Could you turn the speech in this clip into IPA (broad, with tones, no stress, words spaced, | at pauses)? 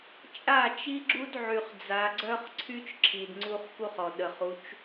t͡ʃʼa˦˨t͡ʃi˦ɡ͡ǁu˦d ʕy˨χd͡za˨ɡ͡ǀœ˦χ ǀʰy˦t͡ʃǁʰi˨d ŋ͡ǀu˦χ ku˦χɔ˨ ɗə˨χu˨˦t͡ʃ